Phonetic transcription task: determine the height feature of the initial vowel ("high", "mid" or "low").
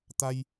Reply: low